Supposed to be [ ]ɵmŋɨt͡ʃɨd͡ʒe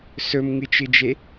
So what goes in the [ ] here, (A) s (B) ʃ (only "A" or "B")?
A